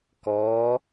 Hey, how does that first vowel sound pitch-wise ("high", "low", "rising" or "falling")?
rising